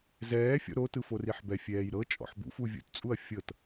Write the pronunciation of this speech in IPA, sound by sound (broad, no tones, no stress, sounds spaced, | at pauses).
z ɛː fʲ ɔ̰ ɾ o t ɯ f o r i ħ b ɛ fʲ ɛː j ɾ ɤ t͡ʃʼ ɔ̰ ħ b ṵ f u vʲ ṵ t t͡sʼ u ɐ̯ fʲ ɤ t